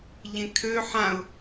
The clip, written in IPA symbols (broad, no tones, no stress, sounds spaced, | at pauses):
ʎ ẽ kʰ ø ħ ã ʊ̯